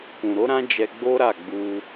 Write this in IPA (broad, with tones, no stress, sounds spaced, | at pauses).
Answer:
k ũ˨ ɾ o˨˦ ɾ ã˦ d͡ʒ ɛ˧ ɡ͡b o˦ ɾ a˦˨ ɡ͡b u˧